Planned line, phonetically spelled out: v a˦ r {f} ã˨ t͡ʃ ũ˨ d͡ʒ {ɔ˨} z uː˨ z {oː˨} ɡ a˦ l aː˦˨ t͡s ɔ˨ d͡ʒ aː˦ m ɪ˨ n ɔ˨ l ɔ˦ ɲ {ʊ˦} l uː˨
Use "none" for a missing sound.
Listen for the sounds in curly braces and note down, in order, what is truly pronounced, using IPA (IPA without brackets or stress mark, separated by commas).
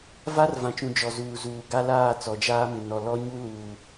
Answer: v, ɔ˨, uː˨, u˦